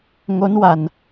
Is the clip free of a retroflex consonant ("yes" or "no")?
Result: yes